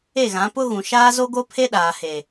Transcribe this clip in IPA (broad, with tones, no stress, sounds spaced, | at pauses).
e˦˨ ɣ ã˨˦ p ʊ˦ ɣ ũ˨ ʃ aː˦ z o˦ ɡ o˦ pʰ e˦ ɗ aː˨ h e˨